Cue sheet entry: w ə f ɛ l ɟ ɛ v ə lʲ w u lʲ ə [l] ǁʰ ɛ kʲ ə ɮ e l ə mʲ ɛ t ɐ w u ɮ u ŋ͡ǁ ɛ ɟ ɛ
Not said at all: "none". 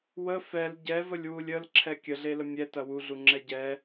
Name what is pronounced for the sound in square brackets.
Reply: l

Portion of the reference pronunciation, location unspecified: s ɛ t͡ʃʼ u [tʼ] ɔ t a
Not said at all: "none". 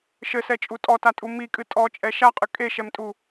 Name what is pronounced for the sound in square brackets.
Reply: tʼ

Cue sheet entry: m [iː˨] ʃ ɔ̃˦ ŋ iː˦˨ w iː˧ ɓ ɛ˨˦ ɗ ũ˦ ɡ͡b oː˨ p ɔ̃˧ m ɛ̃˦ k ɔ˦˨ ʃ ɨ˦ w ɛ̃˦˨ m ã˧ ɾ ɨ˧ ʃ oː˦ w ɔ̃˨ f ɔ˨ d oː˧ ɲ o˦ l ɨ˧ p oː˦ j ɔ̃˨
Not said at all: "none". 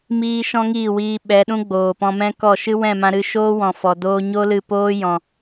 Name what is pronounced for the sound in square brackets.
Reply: iː˦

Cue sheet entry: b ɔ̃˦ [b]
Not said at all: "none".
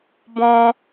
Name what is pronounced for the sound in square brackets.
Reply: none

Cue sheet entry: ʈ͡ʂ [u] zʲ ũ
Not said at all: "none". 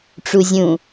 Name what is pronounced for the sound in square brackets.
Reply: u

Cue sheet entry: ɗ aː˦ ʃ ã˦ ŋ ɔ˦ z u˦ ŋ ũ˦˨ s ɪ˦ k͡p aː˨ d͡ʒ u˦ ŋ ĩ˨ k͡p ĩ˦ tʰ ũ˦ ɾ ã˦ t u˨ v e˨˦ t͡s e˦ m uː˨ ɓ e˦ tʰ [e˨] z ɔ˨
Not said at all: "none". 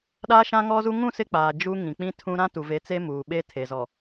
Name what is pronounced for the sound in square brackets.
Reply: e˨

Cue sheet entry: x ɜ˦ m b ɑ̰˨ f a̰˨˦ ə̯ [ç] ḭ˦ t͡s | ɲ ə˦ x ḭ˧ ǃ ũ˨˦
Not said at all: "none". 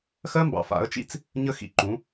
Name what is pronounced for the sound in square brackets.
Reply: t͡ʃ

